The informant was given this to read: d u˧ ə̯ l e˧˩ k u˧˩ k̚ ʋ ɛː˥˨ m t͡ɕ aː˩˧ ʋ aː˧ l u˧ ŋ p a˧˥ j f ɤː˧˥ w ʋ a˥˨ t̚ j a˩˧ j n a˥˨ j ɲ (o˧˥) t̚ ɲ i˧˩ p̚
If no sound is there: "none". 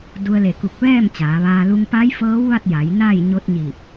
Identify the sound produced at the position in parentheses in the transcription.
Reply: o˧˥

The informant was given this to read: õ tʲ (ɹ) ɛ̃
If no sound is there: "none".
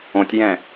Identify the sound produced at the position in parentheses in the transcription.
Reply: j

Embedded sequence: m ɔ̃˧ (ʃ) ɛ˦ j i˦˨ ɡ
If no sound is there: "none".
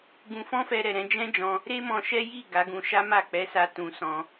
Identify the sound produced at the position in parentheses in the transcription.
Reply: ʃ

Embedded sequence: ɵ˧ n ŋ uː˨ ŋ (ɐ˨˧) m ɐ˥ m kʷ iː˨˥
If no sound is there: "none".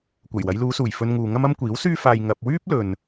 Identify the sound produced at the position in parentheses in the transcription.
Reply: ɐ˥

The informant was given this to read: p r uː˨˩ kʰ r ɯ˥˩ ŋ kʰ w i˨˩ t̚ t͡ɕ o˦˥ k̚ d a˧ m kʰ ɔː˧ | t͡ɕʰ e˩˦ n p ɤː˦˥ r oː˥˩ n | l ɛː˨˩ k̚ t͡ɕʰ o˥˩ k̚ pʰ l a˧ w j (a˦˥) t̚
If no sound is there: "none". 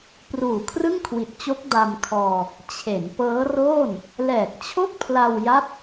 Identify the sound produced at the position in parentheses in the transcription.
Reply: a˦˥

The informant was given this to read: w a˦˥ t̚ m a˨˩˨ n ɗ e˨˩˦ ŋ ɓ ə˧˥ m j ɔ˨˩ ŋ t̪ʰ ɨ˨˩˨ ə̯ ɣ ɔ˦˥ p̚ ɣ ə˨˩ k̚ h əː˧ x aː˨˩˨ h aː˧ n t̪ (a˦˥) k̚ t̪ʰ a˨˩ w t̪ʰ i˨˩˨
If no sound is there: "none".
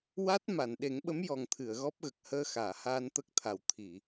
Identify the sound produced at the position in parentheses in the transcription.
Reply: ə˦˥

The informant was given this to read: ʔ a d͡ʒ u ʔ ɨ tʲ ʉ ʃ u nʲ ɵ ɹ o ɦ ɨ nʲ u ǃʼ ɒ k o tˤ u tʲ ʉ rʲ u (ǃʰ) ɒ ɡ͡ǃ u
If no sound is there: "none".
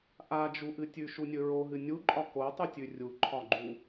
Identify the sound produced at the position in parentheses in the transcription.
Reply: ǃʰ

